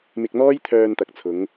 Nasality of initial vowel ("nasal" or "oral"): oral